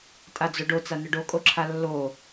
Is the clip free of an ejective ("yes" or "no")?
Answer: no